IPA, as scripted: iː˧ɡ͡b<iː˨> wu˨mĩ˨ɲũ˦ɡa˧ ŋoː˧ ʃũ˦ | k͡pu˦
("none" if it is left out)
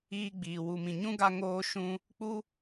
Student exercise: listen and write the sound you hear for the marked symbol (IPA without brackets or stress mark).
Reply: iː˨